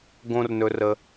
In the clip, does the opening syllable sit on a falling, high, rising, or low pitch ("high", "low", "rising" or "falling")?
low